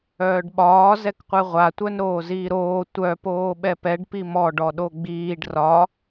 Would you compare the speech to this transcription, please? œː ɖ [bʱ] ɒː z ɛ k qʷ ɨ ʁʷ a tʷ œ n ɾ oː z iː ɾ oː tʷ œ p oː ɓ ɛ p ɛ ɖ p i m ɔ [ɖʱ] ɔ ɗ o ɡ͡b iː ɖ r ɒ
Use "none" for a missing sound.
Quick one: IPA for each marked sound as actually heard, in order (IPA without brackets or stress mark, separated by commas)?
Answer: ɓ, ɖ